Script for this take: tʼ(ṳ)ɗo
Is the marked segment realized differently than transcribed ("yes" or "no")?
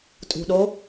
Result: no